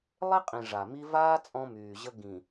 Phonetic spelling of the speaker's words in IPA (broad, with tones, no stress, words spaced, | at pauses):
lˠe˦qʼĩ˨ ʐa˨mi˦ vaː˦ t͡sʼɔ̃˦myː˨ʑə˦ ɡĩ˨